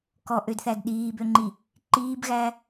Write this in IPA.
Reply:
k ɔ ʔ ø d θ æ d ɗ iː b ø ŋ͡ǃ i | ǃ iː b ɣ æ

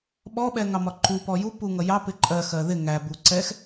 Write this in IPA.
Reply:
ɓ ɔ ɓ ɛ ŋ ɑ m ɒ ǃ u p ɔ j u p u ŋ ʌ j ɑ p ɪ ǃʼ ɜ x ɜ ð ɪ ŋ æ b u ǀ ɛ x

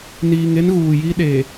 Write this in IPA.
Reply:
n iː˨ ŋ e˦ n ɣ uː˨ j i˦ ɗ e˨

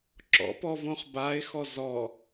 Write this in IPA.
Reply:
ǁ ɔ̰ p ɔ v õ χ b a ɪ̯ x ɔ z ɔ

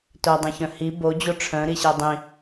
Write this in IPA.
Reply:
t œ dˤ õ ç œ̃ h i b o d͡ʑ o ʈ͡ʂʰ œ̃ ɾ i ɕ ɛ dˤ ĩ

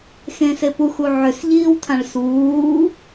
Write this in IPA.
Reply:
x ẽ s e p u x u ʕ ʏ s ʎ iː w tʰ ã ɭ s uː

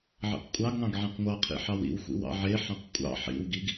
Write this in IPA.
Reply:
ʕ ḭ q kʷʼ ɑ ɡ ŋ ɑ̃ ɡ ʕ ĩ q ŋʷ ɑ qʰ ḭ ħ ɑ w ḭ w xʷ ḭ w ɑ̰ ʕ e ħ ɑ̃ q kʷʼ ɑ̰ ħ ḭ w ɡ i ɡ

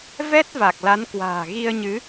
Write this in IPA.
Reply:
v ɛ˦˥ t̚ v a˨˩ k̚ l a˨˦ n k w a̤ː˨˩ ɣ i˧ ə̯ ɲ ɨ˨˦

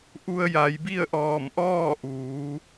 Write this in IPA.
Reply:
ʔ u˧ ə̯ j a˩˧ j b i˥˨ ə̯ ʔ ɔː˧˩ m ʔ ɔː˥˨ ʔ uː˩˧

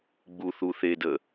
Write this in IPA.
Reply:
ɡ͡b u θ u θ e d ə

